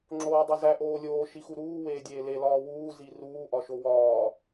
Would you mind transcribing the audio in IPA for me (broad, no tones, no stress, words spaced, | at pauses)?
ŋ͡ǁoːdˤozæ ʔoːlʲoː ʃixuɾuː weːdʲeːle lɒːwuː ziruː ʔɒʃowɒː